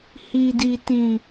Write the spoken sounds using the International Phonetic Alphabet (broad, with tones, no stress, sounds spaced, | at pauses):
h i˨ d i˨ t ĩ˨